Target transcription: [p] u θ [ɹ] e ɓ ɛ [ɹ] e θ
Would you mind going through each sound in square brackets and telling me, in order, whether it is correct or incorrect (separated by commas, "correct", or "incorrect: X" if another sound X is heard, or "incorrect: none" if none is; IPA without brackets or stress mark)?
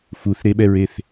incorrect: f, incorrect: ɾ, correct